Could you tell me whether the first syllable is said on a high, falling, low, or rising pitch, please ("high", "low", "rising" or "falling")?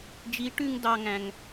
rising